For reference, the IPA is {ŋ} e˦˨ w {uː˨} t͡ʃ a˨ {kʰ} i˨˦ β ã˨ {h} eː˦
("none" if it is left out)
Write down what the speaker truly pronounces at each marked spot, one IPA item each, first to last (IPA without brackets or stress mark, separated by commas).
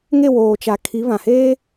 ŋ, oː˨, kʰ, h